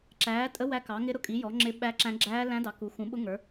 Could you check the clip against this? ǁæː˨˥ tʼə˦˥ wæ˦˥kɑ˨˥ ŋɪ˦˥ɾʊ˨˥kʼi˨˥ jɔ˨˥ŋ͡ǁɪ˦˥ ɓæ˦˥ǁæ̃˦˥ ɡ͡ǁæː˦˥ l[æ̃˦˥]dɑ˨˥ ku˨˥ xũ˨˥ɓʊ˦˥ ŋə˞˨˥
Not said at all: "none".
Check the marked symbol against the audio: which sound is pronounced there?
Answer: æ̃˦˥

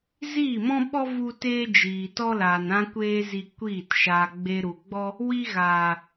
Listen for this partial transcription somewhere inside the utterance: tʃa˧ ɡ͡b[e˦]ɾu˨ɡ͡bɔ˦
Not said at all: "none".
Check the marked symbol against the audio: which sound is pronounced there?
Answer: e˧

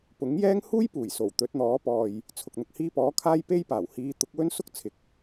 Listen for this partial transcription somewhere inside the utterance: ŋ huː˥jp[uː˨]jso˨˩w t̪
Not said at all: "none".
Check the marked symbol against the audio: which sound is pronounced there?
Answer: uː˨˩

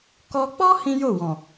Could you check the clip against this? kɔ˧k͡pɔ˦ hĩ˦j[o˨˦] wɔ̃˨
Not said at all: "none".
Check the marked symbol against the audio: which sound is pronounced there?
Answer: o˦˨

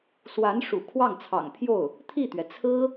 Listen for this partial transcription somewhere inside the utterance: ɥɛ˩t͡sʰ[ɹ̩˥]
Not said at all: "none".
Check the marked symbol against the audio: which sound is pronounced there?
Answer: ɹ̩˥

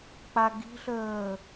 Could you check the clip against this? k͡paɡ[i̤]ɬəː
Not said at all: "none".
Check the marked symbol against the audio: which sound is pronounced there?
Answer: i̤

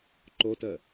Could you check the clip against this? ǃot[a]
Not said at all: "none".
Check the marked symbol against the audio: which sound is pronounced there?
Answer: ə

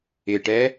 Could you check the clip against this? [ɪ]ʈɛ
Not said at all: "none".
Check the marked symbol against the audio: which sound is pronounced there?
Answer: ɪ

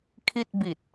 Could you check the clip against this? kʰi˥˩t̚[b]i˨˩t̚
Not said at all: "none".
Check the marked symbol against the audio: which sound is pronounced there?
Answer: b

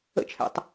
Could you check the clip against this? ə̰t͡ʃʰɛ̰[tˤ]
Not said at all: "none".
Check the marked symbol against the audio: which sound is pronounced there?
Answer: tˤ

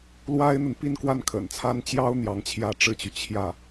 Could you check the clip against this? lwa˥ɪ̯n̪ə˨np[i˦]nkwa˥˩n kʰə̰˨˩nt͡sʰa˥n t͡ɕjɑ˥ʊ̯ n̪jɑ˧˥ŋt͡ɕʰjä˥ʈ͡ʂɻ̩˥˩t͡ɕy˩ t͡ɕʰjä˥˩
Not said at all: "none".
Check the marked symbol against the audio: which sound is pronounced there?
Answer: i˥˧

